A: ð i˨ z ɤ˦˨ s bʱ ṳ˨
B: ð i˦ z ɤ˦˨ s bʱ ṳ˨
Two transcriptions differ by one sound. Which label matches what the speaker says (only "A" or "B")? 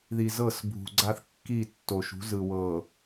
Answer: A